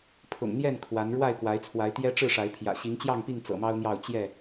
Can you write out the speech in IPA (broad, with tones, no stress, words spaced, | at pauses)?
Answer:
pʰʊ̰˨˩ŋn̪jɛ˥˨n kʰwa˨˦n ɻwa˥˨ɪ̯kwa˨˦ɪ̯t͡sʰwa˨˦ɪ̯ t̪jɛ˦ʈ͡ʂɻ̩˥˨ʂa˨˦ɪ̯ pʰjä̰˨˩ ɕi˨˦ŋt͡ɕjɑ˥˨ŋpi˥˨ŋ t͡sɤ̰˨˩mɑ˦ʊ̯n̪jɑ˥˨ʊ̯ t͡ɕjɛ˥˨